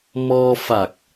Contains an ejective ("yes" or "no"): no